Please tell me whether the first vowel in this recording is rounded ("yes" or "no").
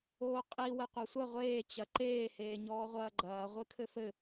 yes